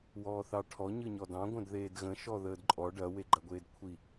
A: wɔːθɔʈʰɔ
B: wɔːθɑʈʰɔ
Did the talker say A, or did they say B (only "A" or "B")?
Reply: B